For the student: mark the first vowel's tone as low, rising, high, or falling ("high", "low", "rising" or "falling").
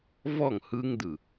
falling